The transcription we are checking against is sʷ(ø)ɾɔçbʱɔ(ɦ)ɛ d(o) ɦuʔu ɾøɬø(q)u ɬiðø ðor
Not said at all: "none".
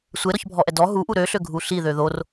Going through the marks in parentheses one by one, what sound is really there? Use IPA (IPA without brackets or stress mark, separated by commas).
e, ʔ, ɔ, ɡʱ